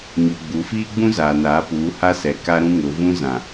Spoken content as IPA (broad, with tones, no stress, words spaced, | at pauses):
ɲo˨ɡ͡bu˨˦ fiː˦ɡ͡bũ˦zaː˨ naː˨˦puː˨˦ ha˦sɛ˨ ka˦ɾũ˦ ŋʊ˨˦ vũ˦zã˨